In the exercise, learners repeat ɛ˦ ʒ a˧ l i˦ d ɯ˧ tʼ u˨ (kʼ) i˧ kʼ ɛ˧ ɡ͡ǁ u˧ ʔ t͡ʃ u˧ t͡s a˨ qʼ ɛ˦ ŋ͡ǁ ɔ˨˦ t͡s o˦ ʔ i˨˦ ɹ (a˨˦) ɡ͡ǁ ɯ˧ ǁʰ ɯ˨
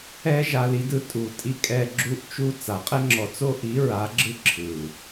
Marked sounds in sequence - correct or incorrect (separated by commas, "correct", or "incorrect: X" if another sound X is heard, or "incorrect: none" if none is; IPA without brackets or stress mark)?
incorrect: tʼ, correct